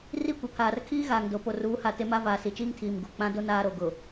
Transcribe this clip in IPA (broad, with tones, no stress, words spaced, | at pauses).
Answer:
ri˦˨kʷɪ˨pʰaː˨rkʰiː˦ ɣaː˨ŋdo˨ po˨ruː˨˦ha˨ te˦ma˦ vaː˨si˨t͡ʃiː˦ŋ tʰiː˨mɡu˨ k͡pã˦do˦ naː˦ɾo˨ɡʊ˨